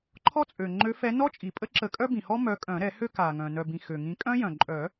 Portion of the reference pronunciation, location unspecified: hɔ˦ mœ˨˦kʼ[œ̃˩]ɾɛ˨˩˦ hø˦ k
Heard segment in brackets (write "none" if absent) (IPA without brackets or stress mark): œ̃˨˩˦